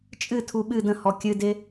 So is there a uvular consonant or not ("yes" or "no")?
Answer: no